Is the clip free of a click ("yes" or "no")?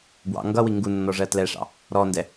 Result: yes